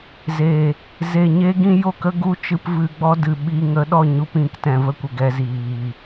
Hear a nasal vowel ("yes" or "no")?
yes